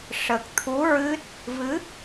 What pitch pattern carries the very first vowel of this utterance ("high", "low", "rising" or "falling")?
low